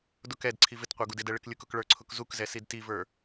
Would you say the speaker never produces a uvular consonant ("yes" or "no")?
no